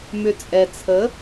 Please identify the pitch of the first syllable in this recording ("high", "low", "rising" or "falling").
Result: low